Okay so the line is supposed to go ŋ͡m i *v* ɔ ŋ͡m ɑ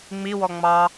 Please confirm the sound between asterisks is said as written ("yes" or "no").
no